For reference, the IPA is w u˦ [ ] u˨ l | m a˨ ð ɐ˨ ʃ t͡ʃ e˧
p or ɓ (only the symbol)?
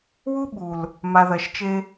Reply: ɓ